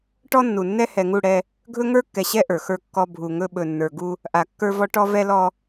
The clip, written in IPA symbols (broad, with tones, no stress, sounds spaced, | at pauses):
ʈ ɔ˦ nː u˨ nː ɛ˦ h ɛ˨ ŋ u˦˨ ɽ ɛ˦ | ɡʱ ɵ˦ ŋ ə˞˦ kː ɛ˨ ɕ ɛ˦ ʔ ə˞˨ x ə˞˦ kː ɔ˦ bʱ u˨ ŋ ɵ˦ ɓ ɵ˨ nː ə˞˨ ɡ u˦ | ʔ a˨ kː ə˞˦ v ɔ˦ ʈ ɔ˦ v ɛ˦ l ɔ˦